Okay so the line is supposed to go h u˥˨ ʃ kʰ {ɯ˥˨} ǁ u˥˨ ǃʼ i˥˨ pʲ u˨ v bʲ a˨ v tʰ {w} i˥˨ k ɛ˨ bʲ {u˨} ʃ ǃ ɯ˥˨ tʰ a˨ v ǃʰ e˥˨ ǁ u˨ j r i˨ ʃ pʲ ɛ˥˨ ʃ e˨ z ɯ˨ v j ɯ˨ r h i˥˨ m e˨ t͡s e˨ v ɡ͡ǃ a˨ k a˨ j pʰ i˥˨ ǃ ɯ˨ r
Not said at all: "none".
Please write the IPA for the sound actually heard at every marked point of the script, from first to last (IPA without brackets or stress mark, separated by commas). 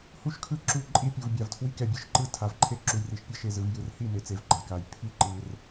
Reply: ɯ˥˨, w, ɯ˨